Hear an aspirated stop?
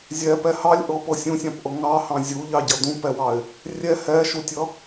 no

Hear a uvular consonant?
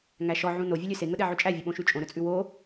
no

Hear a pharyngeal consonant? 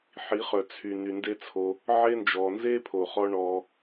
yes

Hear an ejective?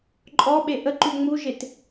yes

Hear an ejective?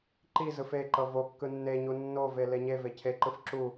no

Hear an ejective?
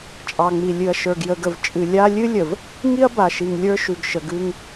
yes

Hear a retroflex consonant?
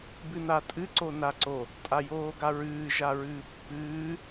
no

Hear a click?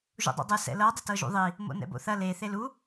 no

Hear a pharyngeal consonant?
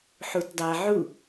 yes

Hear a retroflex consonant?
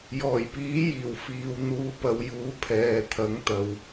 no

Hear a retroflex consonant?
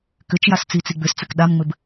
no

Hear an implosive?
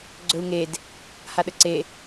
yes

